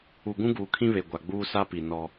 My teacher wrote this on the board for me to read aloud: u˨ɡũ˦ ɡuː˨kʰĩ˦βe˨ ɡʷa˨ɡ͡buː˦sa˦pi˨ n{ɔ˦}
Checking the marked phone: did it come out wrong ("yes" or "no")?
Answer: no